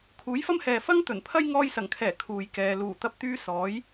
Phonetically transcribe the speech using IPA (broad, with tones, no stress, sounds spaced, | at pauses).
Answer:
kʰ uː˨˥ j f ɐ˥ m h ɛː˨ f ɐ˥ ŋ t̪ ɵ˨˩ n pʰ ɐ˥ j ŋ ɔː˧ j s ɐ˨˩ ŋ kʰ ɛː˨˩ kʰ uː˨ j k ɛː˨ l uː˨˩ t̪ ɐ˧ p̚ t̪ yː˧ s ɔː˨˥ j